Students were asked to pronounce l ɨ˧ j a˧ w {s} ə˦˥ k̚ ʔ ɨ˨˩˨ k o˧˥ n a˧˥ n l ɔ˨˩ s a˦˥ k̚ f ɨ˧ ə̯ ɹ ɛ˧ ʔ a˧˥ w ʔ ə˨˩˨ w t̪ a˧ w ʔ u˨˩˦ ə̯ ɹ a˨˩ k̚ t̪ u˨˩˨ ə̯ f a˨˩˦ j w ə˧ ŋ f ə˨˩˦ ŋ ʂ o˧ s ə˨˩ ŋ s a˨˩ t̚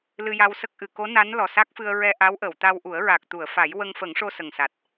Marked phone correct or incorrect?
correct